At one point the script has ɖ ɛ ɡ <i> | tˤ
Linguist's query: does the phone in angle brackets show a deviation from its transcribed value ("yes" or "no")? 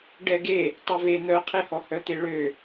yes